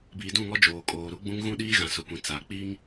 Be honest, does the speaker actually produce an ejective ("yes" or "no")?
yes